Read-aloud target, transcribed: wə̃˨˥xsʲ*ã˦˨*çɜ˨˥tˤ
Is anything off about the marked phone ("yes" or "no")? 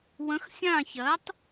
no